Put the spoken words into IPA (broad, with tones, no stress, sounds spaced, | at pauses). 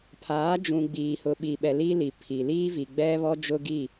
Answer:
pʰ aː˨˦ d͡ʒ ũ˨ ɡ͡b iː˨ h ʊ˨ ɓ i˨ ɓ ɛ˨ l i˦ l i˨ pʰ i˨ l iː˦ v i˨ ɡ͡b ɛ˦ β ɔ˦ d͡ʒ ʊ˦ ɡ i˦˨